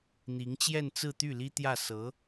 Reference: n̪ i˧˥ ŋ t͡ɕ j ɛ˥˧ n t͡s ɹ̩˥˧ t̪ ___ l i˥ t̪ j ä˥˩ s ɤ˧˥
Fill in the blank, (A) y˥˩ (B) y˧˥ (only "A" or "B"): A